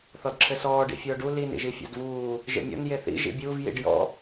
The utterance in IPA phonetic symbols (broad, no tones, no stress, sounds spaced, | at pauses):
θ ɔ d ǁʰ ɘ s ɔː ɖ ḭ fʲ ɔː ɖ u l i n ḭ ʒ i fʲ ɔ̰ d v uː | ʒ ḛ mʲ ɔ̰ n j e θ ḭ ʒ ḭ bʲ uː v j ḭ ɖ j ɔ̰